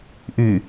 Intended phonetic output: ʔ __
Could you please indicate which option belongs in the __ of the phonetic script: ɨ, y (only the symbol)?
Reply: y